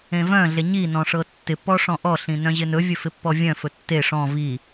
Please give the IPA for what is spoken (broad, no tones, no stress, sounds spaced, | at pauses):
ẽ v œ̃ ɮ e ɲ i n ɔ̃ ʂ ɤ tː ɪ p ɔ ʂ ɔ̃ ʔ ɔ ɬ ĩ n œ̃ ʑ ɪ n ɵ vʲ ɵ f ɪ pː ɔ vʲ œ̃ f ɵ tː e ʂ ɔ̃ v i